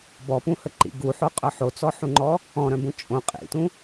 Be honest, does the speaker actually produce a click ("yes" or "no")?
yes